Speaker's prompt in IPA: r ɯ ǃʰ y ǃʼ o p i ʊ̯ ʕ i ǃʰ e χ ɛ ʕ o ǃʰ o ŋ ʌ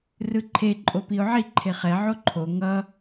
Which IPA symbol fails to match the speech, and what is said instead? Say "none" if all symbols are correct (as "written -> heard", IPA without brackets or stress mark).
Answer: y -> e